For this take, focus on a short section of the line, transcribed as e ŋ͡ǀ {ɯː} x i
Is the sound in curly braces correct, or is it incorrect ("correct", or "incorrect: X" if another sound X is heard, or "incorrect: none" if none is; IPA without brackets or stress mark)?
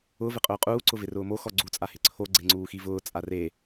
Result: incorrect: uː